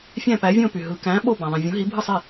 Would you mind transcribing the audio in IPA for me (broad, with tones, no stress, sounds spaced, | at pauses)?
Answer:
fʲ æ̃˥˧ p æ˧˥ vʲ õ˥˧ p y˨ ɦ ɯ˨ k æ̃˧˥ ɓ o˥˧ b æ̃˨ ðˤ ĩ˨ vʲ õ˧˥ ɦ i˧˥ bʱ ɯ˥˧ sˤ e˥˧